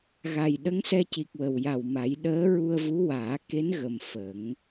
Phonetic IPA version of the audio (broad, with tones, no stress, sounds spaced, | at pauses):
ɣ a˨˩ j ɗ ə˧˥ ŋ s ɛ˧ c i˨˩ k̚ w ə˨˩ w j a˨˩ w m a˨˩˦ j ɗ əː˧˥ ɹ u˧ ə̯ v u˧˥ w aː˨˩˦ k e˧˥ n ɣ ə˨˩ m f ə˨˩˦ ŋ